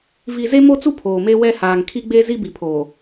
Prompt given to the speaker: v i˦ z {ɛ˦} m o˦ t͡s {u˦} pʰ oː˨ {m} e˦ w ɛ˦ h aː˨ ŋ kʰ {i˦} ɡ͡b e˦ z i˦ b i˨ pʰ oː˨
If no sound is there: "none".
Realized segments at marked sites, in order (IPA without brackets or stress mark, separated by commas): e˦, u˦, m, i˦